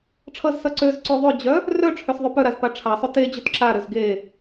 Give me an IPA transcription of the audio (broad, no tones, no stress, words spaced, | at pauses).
ʈ͡ʂʰʌzsʌ ǀøz ǀø ðˤød͡ʑœ | rœ ʈ͡ʂʰøsðˤøpœɾaz paʈ͡ʂʰasˤø te d͡ʑøtǁaɾøz ɡe